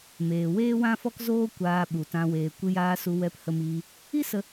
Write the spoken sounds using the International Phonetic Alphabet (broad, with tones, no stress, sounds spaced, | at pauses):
m eː˨ w eː˦ w ã˦ f ɔ˦ k z oː˦ kʷ aː˧ ɓ u˨ t ã˧ w eː˨ kʷ ɨ˧ j aː˧ s u˧ w ɛ˧ p h ə˧ m iː˧ | i˦ s ə˧